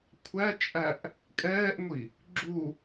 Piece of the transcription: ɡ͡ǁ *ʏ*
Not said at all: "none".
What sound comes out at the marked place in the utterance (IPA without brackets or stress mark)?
u